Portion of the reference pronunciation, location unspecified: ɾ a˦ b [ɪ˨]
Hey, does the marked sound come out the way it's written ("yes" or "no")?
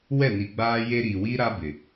yes